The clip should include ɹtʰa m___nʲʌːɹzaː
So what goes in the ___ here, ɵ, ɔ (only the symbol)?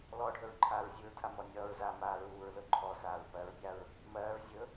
ɔ